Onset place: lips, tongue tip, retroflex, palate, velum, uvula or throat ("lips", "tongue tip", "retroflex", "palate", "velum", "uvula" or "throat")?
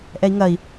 throat